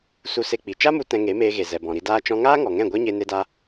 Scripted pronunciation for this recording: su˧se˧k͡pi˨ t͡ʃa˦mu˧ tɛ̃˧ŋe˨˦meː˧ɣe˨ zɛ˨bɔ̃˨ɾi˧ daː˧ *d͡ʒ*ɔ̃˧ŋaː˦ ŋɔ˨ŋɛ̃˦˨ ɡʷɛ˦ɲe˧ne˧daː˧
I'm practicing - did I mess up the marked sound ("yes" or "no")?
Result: yes